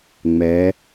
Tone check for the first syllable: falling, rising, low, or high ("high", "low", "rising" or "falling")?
rising